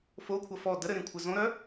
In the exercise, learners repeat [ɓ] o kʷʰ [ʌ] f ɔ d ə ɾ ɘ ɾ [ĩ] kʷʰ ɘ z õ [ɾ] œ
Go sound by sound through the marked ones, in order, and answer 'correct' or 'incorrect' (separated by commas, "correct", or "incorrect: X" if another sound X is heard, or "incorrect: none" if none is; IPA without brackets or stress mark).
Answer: incorrect: f, correct, correct, correct